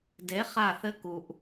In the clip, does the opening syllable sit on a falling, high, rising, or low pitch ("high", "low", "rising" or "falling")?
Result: rising